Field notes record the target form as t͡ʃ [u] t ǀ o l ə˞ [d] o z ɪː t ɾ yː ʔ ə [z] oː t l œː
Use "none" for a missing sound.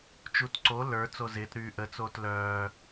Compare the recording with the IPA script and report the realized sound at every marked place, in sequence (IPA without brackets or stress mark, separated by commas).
u, t͡s, t͡s